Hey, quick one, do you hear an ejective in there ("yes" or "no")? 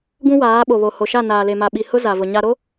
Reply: no